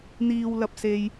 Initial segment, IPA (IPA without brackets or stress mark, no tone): n̪